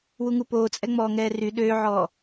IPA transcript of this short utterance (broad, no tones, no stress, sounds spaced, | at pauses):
w u ŋ u p oː t͡sʼ ɛ ŋ͡m ɔː ŋ ɛː r y ɗ øː ʕ ɔː